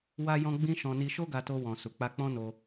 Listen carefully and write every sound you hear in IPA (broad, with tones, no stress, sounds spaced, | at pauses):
w a˧ j ɔ̃˧ ɡ͡b ĩ˧ ʃ ɔ̃˧ n i˧ ʃ o˦ ɡ a˧ t o˧ w ɔ̃˨ s u˨ k͡p a˧ k͡p ɔ̃˦ n o˧